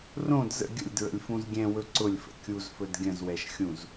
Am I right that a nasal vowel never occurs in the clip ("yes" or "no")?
no